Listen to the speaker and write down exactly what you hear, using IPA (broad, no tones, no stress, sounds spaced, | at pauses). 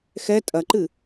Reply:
x ɛ tʼ ɐ ǃ ɨ